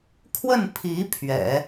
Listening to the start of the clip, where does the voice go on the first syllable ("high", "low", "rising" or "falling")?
falling